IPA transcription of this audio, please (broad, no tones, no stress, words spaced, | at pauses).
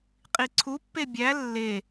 qʼiǀʰupːe bʲæ lːe